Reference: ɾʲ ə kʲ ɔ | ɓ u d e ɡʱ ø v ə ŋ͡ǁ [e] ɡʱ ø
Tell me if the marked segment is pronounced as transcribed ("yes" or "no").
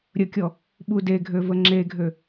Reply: yes